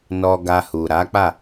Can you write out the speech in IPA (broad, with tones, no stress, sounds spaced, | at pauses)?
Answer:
n ɔ˧ ɡ a˧ h u˨ ɾ a˨˦ k͡p a˦˨